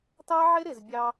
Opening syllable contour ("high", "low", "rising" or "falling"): high